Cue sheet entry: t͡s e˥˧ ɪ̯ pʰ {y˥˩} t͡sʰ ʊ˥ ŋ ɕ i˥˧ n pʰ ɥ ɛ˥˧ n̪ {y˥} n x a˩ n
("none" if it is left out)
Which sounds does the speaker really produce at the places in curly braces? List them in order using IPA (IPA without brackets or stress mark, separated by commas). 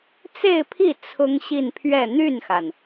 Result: i˥˩, y˥˩